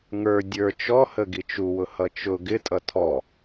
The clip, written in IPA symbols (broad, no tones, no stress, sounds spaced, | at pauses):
ŋ ə˞ dʲ ə˞ t͡ʃ ɔ h ə ɡ i t͡ʃ u w ʊ h ʌ t͡ʃ ʊ ɡ ɪ tʼ ʌ tʰ ɔ